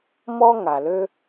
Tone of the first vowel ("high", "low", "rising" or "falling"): high